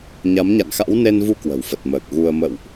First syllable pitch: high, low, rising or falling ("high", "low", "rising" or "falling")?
rising